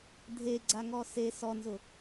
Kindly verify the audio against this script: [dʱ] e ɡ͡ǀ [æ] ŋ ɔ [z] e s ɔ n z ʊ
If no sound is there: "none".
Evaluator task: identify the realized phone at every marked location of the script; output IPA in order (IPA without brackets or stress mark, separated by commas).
dʱ, a, s